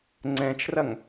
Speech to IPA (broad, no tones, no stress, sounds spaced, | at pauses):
ŋ͡ǀ ɛ̃ t͡ʃ r ɐ ŋ